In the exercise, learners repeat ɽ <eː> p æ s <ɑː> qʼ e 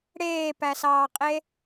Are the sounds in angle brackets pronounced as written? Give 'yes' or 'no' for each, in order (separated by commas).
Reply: yes, yes